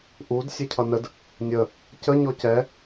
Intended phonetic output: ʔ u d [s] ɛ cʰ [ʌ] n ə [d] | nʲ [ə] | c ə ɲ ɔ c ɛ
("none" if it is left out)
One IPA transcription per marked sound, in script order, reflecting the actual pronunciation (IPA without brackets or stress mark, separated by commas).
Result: sʲ, ʌ, d, ə